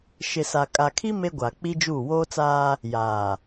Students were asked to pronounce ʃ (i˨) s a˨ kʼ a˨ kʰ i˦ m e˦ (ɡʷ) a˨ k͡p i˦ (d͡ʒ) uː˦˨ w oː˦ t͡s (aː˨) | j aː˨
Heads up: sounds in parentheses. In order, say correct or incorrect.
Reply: incorrect: ɪ˨, correct, correct, incorrect: aː˦

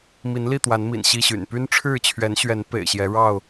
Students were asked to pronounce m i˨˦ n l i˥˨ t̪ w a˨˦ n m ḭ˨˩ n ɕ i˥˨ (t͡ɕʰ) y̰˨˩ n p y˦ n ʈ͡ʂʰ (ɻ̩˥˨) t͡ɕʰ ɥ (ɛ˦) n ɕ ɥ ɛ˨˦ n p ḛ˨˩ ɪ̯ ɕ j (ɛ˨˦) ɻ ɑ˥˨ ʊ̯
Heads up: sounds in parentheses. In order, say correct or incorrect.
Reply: incorrect: ɕ, correct, incorrect: ɛ˨˦, correct

